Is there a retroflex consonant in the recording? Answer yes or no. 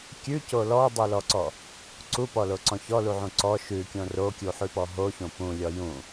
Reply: no